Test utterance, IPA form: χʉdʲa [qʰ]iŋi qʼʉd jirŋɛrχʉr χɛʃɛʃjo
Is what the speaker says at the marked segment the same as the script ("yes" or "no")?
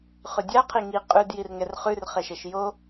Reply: yes